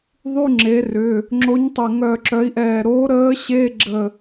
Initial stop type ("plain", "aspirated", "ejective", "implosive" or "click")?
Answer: click